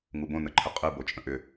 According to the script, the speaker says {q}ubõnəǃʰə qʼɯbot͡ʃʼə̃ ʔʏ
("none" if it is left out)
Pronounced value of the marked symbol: ŋ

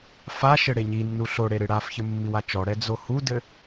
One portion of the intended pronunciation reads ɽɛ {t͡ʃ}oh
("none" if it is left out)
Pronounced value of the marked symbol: d͡z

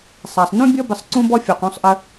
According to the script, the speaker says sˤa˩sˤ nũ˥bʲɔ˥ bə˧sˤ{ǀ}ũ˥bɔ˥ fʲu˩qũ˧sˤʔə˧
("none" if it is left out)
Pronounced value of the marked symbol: ǀ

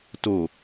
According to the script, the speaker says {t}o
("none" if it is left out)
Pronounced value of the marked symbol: t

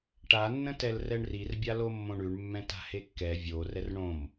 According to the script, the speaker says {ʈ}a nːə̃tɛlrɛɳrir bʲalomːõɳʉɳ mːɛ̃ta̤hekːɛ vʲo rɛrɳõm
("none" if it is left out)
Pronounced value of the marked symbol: ʈ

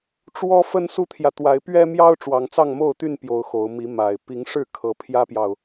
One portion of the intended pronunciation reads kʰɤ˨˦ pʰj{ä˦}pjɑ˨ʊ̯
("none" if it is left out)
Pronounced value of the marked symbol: ä˦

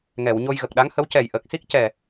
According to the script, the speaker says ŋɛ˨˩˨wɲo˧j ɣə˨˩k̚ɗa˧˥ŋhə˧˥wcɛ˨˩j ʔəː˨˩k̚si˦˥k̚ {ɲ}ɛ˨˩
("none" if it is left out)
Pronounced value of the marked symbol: c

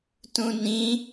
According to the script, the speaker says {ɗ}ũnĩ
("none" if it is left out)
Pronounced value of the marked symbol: t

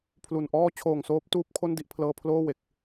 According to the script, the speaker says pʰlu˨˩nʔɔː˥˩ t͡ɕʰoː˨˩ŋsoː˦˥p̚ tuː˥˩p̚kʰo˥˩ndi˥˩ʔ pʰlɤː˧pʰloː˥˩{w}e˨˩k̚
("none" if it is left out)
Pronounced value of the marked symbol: w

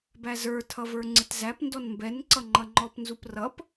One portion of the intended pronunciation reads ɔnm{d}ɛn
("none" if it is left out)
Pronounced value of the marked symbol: b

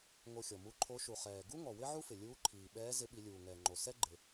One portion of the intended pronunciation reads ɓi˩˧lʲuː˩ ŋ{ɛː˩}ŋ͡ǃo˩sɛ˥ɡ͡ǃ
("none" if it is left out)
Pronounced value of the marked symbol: ɛː˩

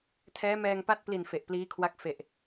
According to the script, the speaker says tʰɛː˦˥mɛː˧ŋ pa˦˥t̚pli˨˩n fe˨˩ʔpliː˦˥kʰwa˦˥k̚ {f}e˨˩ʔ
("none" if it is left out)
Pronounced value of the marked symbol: f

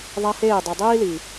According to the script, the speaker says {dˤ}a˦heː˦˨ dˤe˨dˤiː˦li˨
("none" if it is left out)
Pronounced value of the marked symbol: ðˤ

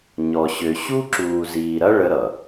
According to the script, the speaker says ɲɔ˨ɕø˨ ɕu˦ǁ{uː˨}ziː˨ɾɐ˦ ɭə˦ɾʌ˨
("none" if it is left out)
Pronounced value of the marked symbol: uː˨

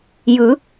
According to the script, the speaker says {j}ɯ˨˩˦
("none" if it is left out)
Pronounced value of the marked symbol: j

